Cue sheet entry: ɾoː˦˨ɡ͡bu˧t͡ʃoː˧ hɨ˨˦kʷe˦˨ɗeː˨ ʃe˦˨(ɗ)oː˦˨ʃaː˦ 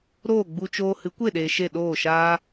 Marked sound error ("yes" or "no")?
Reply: no